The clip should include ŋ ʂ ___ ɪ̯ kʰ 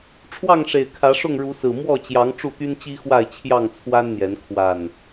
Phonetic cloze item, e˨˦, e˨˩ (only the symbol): e˨˩